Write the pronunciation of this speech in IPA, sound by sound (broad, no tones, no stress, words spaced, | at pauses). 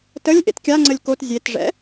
təlʲ ʔḛtkʲaŋ͡ǀəlʲ kot zʲetʐɛ̰